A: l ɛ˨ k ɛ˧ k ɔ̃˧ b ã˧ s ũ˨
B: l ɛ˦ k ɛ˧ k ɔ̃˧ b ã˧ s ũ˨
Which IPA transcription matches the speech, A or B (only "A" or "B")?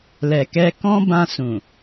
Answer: A